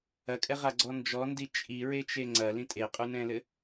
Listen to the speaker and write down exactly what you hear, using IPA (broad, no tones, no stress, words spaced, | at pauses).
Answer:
ɐkʼɛʁaɡ͡ǀɔ nd͡ʒɔndi t͡ʃʼiɹet͡ʃe ŋ͡ǀɐlĩ tʼeqʼunɛ̃lɘ